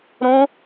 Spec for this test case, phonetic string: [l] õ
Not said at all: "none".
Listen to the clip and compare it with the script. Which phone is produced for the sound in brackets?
ɾ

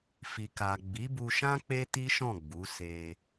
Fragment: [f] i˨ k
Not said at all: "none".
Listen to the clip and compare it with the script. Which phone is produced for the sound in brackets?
f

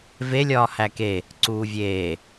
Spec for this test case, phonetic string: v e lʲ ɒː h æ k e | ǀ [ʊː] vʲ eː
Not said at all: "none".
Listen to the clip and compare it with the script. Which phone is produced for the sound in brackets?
uː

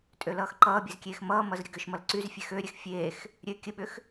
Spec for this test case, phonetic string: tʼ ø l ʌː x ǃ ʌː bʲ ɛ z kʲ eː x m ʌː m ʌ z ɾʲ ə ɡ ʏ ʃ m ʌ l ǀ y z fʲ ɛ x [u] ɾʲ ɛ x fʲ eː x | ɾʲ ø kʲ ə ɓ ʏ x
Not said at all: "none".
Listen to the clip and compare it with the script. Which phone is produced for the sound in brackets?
ø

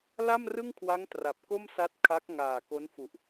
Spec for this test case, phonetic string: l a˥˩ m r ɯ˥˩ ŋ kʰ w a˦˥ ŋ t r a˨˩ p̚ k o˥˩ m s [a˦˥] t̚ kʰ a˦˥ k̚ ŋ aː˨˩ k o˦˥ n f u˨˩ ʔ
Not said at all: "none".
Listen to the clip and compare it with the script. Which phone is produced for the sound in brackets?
a˦˥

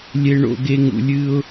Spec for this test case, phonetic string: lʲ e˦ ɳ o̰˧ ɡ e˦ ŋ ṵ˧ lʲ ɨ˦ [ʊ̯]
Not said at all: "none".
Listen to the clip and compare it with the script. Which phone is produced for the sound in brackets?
ʊ̯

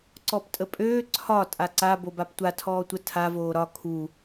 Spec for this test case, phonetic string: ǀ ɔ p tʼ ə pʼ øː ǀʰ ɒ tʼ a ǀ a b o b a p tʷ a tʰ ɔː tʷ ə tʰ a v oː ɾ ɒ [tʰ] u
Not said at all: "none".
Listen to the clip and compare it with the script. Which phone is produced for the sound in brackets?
kʰ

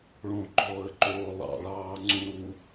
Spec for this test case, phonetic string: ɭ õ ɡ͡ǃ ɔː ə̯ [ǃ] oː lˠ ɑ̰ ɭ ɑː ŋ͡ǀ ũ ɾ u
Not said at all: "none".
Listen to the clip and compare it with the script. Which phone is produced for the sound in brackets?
ǃ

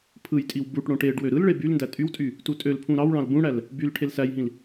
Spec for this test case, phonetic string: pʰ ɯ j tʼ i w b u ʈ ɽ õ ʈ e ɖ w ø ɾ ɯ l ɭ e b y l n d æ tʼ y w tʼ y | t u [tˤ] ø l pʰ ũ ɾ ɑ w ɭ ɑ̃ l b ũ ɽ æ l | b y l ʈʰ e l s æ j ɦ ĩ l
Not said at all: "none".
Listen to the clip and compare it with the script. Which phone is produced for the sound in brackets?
tʼ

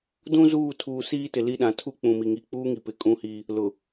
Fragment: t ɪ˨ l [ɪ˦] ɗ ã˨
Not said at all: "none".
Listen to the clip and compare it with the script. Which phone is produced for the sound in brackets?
i˦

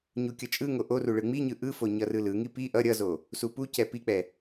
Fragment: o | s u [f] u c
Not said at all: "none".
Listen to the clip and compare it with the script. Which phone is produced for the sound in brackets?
p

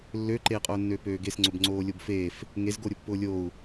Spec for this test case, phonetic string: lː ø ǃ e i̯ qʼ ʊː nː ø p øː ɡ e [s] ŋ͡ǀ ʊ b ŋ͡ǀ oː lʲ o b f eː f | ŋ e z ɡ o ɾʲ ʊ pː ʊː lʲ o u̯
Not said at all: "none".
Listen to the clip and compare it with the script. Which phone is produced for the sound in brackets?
s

